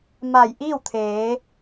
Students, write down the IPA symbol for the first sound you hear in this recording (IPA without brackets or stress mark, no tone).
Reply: m